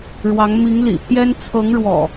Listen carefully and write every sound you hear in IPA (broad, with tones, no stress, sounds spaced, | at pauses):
ɻ w ɑ˨˦ ŋ m i˨˦ ŋ l ḭ˨˩ pʰ j ɛ˦ n t͡sʰ ɤ˨˦ ŋ ɻ w ɔ̰˨˩